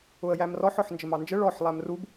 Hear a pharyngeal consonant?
yes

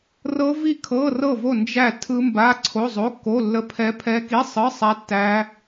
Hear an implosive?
no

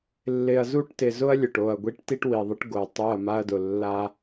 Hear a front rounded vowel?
no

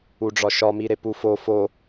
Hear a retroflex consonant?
yes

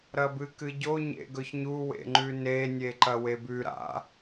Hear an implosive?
no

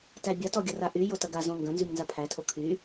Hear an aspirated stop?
yes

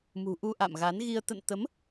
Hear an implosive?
no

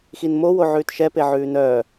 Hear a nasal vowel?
no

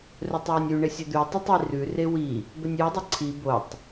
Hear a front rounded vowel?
no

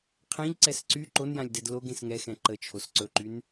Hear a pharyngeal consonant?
no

